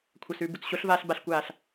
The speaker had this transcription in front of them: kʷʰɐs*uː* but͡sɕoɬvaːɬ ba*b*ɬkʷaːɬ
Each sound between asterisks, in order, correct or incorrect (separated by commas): incorrect, incorrect